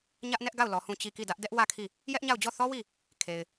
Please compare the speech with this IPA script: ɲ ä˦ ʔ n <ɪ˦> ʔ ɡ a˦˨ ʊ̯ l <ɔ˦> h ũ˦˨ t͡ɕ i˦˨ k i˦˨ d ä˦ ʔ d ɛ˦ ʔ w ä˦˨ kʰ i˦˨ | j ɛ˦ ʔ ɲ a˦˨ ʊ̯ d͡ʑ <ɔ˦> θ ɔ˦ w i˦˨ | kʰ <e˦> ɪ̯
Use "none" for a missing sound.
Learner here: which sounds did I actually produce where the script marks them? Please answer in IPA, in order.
ɛ˦, ɔ˨, ɔ˦˨, e˨

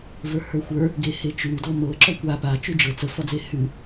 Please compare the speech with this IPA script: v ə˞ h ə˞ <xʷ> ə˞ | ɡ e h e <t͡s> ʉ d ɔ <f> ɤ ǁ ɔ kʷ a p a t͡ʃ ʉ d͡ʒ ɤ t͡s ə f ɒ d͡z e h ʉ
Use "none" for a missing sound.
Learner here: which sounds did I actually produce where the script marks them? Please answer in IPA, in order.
xʷ, t͡ʃ, m

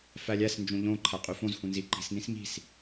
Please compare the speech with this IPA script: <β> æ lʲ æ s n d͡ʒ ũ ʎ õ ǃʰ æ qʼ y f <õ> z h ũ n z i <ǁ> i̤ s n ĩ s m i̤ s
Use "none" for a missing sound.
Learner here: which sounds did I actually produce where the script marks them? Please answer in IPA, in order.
f, õ, ǃ

